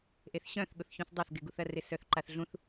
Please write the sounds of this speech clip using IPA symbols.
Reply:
ʔeθɕœ̃θɠʊθçũθ dˤaθɡɪɡuθɐ rɪsœθǃaθɮũθ

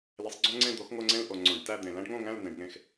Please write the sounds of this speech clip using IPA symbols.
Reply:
le˨˥sˤɡ͡ǀõ˥ŋ͡ǀẽ˥˧ d̪o˨˥xŋo˥˧ŋ͡ǀẽ˥˧l ʔo˨ŋ͡ǀõ˨˩˦ɖ tæ˥˧d̪ẽ˨ læ̃˥ɖŋõ˥˧ŋæ̃˥˧l nẽ˨˩˦ɖŋẽ˥˩x

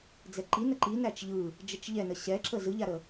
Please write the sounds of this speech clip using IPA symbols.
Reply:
d͡zɛǃi nəǃi næt͡ʃʎɯ | d͡ʒət͡ʃʎɛnə ɕɛǁə zɯʎaɾə

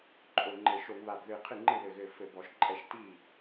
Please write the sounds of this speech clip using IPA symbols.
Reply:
ǃʼo˧˩ŋ͡ǃɘ˧˩˧ ʃo˧˩˧ŋβa˧˩bðɨ˧˩ qʰɨ˥˩ŋ͡ǃɨ˥˩ ðɘ˧˩ɣɘ˧˩ fɘ˧˩˧bɔ˧˩˧ʃǃʼɛ˥˩ʃ ti˥˩

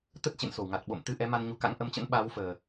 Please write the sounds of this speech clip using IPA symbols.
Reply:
t̪ə˦˥t̚t͡ɕḛ˧˨nso˧˩wŋa˨˩t̚ ɓo̰˧˨mt̪ɨ˧ ʔɛ˨˦ma˧nɲu˨˦ka̰˧˥ŋ ʔə˨˦mt͡ɕə̰˧˥nɓaː˨˦wfəː˨˩

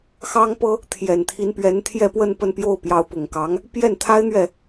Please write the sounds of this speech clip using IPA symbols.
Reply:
xɑ˥ŋpɤ˥ | t̪ʰjɛ˨˩nt̪ʰi˧˥npɥɛ˧˥n t̪ʰjɛ˥˧pwə˥˧n pə˥˧npjo˥˩ʊ̯ pjɑ˧˥ʊ̯pʊ˨˩ŋkɑ˧˥ŋ | pjɛ˥˩nt̪ʰa˥ɪ̯n̪ɥɛ˥˩

